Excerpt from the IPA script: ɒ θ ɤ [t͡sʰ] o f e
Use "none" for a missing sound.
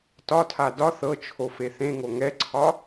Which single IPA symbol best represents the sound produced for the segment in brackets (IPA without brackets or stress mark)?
t͡ʃʰ